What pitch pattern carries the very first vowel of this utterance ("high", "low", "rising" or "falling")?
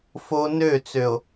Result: high